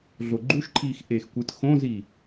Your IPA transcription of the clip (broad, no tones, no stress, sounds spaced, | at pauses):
ɮ o ɡ͡ǃ u ʃ ǃʰ iː x ʔ eː x kʷ ɯ t x õ z i